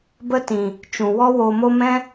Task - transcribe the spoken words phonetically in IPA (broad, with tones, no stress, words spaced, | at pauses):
bə˦tĩ˨ | t͡ʃũ˨wɔ˦ woː˨mo˧ mɛ̃˦